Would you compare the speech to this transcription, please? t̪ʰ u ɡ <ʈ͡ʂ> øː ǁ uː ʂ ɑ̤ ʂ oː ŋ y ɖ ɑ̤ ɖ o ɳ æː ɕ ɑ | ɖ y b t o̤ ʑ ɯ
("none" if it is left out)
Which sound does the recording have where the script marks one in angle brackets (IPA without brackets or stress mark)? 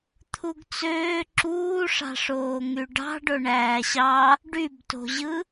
t͡s